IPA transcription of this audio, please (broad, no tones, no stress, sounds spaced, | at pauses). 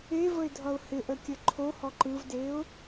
e v ə ɪ̯ dʱ ʌ ʊ̯ h ɪ ʔ ə kʲ ə ǃʰ o h ɔ ǃ ɯ v d e ʊ̯